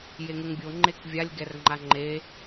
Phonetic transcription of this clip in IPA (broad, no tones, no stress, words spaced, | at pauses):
jeŋuŋbʲo ŋ͡ǃekvʲalʲ ɡɛrŋ͡ǃaŋ͡ǃe